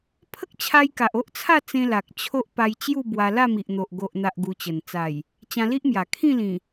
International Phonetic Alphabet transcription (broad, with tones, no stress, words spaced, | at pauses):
pʰə˦k̚t͡ɕʰa˧jka˨ʔ o˦ʔt͡sʰa˥˧ t͡sẽ˧la˨k̚ t͡ɕʰo˦ʔpa˧j t͡ɕju˥˧bwa˧ la˥˧mi˨ʔn̪o˨ʔ ɡo˨ʔn̪a˨ʔ ɡu˧t͡ɕə˨˩n t͡sa˨˩j | t͡ɕã˧li˦ʔmja˨˩ kʰĩ˥˧lĩ˨˩